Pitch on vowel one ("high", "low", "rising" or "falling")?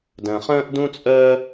low